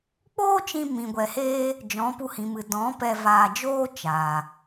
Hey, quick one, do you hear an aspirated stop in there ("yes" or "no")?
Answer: no